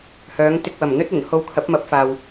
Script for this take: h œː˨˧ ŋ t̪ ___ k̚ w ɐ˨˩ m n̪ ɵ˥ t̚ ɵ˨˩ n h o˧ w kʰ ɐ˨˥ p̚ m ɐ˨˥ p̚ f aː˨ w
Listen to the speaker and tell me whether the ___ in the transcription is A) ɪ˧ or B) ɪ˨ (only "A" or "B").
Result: A